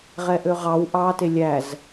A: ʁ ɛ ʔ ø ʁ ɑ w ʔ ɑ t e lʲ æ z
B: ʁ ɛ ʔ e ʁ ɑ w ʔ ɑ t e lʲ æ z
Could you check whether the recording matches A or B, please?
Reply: A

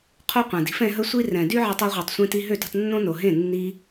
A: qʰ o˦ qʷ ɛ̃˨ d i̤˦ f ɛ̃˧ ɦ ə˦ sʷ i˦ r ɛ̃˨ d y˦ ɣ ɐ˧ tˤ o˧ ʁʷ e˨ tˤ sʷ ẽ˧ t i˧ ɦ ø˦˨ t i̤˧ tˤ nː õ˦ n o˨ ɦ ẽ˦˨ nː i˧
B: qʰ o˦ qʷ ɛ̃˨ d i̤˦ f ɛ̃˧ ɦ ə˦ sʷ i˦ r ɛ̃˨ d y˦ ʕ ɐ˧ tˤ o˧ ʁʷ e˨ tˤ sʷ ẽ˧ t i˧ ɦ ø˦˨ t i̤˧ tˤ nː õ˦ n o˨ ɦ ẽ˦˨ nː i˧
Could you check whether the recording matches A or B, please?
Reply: B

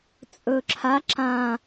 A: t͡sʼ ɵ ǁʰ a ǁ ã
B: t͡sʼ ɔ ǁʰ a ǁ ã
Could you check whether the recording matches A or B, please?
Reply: A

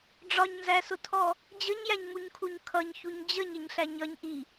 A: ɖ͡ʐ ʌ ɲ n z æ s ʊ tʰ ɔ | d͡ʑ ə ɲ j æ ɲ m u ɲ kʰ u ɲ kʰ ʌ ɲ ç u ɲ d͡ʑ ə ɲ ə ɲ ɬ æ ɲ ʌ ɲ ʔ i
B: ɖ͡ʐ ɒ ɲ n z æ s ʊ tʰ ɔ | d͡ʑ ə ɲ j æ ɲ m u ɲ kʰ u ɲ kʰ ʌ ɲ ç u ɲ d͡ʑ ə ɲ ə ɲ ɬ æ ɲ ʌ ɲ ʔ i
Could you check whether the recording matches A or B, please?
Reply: B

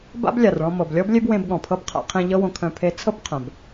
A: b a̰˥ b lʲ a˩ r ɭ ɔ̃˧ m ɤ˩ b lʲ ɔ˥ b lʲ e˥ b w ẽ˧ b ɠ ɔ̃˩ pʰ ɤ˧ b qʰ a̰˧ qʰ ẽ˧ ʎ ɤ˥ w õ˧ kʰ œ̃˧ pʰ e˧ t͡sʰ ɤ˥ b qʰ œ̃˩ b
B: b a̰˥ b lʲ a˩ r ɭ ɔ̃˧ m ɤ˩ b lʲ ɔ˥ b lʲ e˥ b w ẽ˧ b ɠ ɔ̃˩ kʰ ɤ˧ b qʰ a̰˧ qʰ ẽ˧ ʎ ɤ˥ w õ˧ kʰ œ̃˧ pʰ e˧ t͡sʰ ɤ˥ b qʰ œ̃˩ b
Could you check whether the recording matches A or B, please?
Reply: A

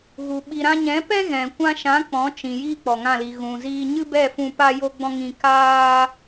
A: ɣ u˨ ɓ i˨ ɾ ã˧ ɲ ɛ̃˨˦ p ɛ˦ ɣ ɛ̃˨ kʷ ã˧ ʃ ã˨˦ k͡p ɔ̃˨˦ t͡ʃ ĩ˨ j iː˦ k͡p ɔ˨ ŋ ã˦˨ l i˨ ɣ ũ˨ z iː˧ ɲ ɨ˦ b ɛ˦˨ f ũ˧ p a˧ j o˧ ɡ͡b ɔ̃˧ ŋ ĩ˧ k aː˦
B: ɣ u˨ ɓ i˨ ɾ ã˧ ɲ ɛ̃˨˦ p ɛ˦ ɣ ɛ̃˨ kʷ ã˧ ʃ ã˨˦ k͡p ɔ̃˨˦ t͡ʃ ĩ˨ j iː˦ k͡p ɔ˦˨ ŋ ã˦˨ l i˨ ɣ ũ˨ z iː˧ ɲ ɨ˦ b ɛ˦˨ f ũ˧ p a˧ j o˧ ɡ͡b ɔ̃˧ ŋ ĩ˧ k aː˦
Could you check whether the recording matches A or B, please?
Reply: A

